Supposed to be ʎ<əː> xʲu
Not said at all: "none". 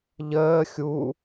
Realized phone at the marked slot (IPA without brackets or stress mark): əː